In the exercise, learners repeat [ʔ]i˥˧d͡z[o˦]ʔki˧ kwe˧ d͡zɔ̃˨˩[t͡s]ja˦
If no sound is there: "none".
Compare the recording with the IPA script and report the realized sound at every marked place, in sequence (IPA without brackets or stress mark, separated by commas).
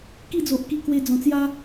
k, o˨, t͡s